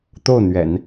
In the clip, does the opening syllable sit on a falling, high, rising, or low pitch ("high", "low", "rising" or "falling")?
falling